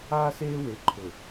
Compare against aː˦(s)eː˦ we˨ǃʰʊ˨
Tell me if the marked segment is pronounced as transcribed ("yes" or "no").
yes